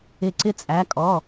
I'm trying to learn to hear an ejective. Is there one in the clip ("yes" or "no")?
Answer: yes